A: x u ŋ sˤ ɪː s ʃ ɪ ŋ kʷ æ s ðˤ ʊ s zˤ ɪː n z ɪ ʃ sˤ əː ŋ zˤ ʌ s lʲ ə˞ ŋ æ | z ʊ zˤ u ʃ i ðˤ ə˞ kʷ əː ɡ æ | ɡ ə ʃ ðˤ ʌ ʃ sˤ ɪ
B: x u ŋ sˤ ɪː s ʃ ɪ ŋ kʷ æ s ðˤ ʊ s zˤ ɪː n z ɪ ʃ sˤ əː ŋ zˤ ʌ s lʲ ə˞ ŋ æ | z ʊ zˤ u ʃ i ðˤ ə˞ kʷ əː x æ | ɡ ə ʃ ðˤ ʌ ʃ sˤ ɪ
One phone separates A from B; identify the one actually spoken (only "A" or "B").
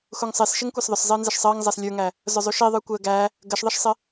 A